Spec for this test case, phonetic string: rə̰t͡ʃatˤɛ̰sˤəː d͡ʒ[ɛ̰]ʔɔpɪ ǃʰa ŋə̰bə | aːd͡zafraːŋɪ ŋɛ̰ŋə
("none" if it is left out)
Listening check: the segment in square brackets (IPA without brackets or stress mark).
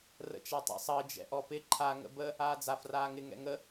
ɛ̰